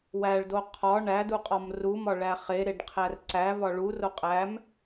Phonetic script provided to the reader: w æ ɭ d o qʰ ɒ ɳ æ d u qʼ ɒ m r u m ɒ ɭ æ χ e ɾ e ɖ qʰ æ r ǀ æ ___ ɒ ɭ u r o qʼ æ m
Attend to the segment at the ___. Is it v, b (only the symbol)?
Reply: v